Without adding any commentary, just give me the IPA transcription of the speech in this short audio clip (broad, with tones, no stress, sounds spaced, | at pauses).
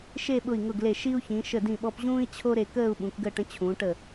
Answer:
ʃ e˥˧ ɓ ʊ˧˩ i̯ ŋ ʊ˧˩ ɡ l e˧˩ ʃ i˥ u̯ ç ĩ˩˧ ʃ ə˧˩ d ĩ˧˩ ɓ ɔ˧ p ʑ ũː˥ i̯ t͡ɕʰ o˥ ɾ e˧ k əː˥˧ u̯ ɓ ũ˩˧ k ɡ əː˥˧ ʈ ə̃˥ t͡ɕʰ ũː˩˧ ʈ ə˧˩